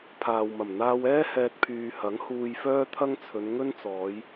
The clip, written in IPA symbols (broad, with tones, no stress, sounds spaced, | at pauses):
pʰ aː˨ w m ɐ˨˩ m n̪ aː˧ w ɛː˥ h ɛː˧ t̚ pʰ yː˨ h ɐ˨˥ ŋ h uː˧ j f œː˥ t̪ʰ ɐ˥ ŋ t͡sʰ ɵ˨˧ n ŋ ɵ˥ n t͡s ɔː˨˧ j